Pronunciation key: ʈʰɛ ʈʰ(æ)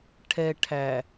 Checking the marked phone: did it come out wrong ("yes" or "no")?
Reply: no